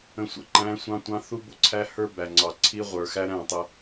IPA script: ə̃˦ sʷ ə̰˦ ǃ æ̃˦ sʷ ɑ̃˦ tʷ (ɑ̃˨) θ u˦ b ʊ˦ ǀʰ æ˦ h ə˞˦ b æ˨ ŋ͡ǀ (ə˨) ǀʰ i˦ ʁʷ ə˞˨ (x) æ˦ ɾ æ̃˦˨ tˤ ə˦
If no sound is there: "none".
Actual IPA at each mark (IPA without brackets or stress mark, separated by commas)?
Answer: ɑ̃˦, ɑ˨, x